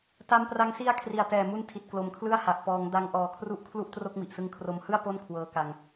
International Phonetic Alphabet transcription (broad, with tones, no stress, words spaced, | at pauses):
ta˧mpra˧ŋsi˦˥a̯ kʰri˨˩a̯tɛː˨˩mu˦˥n tʰi˨˩t̚klo˨˩mkʰlɯ˥˩a̯ha˨˩ʔ pɔː˩˦ŋda˧ŋ ʔɔː˨˩kʰru˦˥ʔ kʰlu˥˩ʔ tro˥˩k̚mi˨˩ʔsɯ˦˥ŋ kʰro˧mhɯ˥˩a̯ po˥˩nkʰwɤː˧ka˧ŋ